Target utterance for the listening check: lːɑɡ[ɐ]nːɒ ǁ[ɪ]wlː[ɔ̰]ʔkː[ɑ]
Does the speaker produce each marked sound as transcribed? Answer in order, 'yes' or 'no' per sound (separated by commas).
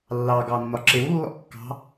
no, yes, yes, no